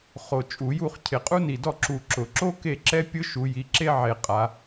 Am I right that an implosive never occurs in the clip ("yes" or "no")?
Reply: yes